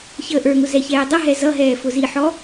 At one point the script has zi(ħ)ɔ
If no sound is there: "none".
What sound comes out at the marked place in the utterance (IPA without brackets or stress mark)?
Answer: ħ